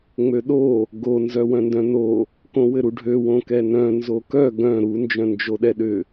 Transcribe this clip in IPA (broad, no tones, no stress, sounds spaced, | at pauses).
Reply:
ŋ͡m ø ɗ o | ɡ o n z œ w œ̃ n d œ̃ n o | k õ w ɘ ɾ u ɖʱ ø w õ k ɛ n œ̃ n z o k œ ɡ œ̃ ɾ u n d͡ʒ œ̃ n d͡ʒ o ɗ ɛ ɗ ʏ